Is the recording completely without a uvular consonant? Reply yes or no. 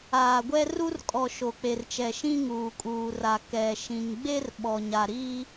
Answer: yes